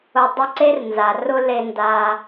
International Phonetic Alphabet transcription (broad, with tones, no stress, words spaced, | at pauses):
ʊ˨ dˤʊ˧ ǀe˦rnza˨rʊ˦ le˧nda˧